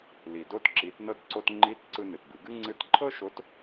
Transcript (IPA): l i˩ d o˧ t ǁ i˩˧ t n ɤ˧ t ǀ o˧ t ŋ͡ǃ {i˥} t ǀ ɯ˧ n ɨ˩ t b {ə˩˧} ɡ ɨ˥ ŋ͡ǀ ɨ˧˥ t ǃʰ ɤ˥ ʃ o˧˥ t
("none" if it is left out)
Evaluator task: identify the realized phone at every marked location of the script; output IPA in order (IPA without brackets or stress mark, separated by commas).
i˧˥, ɨ˩˧